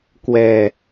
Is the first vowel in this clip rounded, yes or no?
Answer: no